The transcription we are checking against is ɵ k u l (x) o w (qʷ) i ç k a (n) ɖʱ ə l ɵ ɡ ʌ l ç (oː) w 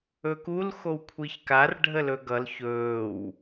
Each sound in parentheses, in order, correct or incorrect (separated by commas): correct, incorrect, incorrect, incorrect